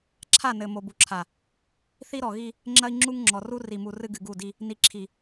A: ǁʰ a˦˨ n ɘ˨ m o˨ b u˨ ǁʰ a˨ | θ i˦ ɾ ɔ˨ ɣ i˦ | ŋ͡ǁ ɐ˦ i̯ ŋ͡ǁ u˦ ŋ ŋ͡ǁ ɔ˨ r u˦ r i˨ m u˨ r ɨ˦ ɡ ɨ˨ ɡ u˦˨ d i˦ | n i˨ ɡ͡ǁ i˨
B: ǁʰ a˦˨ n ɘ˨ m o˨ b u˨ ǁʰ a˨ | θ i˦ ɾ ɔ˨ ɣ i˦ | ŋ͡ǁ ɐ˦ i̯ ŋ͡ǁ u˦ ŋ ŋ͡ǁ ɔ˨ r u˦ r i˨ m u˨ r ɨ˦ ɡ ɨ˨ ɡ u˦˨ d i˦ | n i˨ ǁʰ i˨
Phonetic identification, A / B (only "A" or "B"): B